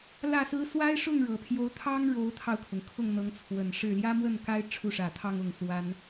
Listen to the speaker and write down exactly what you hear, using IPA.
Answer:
l ä˥˩ s ɹ̩˥ s w a˥ ɪ̯ ʂ ʊ˥˩ ŋ ɻ ɤ˨˩ pʰ j o˧˥ ʊ̯ t̪ʰ ɑ˥ ŋ ɻ o˧˥ ʊ̯ t̪ʰ ɑ˧ ʊ̯ kʰ ʊ˩ ŋ kʰ ʊ˥˩ ŋ n̪ ɤ˧˥ ŋ t͡sʰ w ə˨˩ n ʂ ɻ̩˥˩ l j ä˥ m w ə˥˩ n k a˥ ɪ̯ ʈ͡ʂʰ u˥˩ ʂ ä˨˩ t̪ʰ ɑ˥˧ ŋ ʊ˥˩ ŋ s w a˥ n

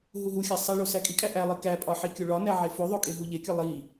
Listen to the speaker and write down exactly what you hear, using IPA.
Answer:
ɦ u ɦ u xʲ æ sˤ i ɭ o s æ kʼ i kʼ æ ʔ æ lˠ i k æ pʼ ɒ ħ i kʲ o ɭ ɒ n æ ʕ e f o ðˤ o kʼ e ɦ u ʎ e kʲ ɒ lˠ i

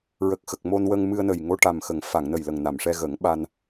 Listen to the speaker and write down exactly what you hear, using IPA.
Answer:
ɹ ə˨˩ k̚ x ə˨˩ k̚ m o˧ n w ə˧ ŋ m ɨ˧ ə̯ n ə˨˩ j ŋ o˧ ʈ a˨˩ m x ə˨˩˨ ŋ f a˨˩˨ ŋ n ə˨˩ j l ə˨˩ ŋ n a˨˩˨ m ʂ ɛ˧ ɣ ə˨˩˦ ŋ ɓ a˧ n

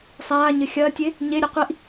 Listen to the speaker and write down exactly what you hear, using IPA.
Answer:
sˤ aː ɲ ɘ xʲ ɐː tʲ e | ɲ e ɾʲ ɘ qʷ i ʔ

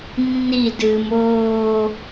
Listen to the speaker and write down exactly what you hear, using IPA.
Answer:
nː i d ɨː m oː

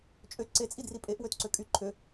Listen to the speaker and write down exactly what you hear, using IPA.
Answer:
t͡ʃʼ ø ǀ e t͡sʼ i d r i pʼ e ʔ w ø t ǀ ø kʼ y ǃʰ ø

